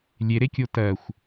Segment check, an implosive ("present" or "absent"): absent